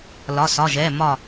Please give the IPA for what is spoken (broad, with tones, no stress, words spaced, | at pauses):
lɒ˩˧˩sɒ˩˧˩ʒɛ˩˧˩mɒ˧˩